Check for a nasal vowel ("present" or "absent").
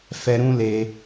present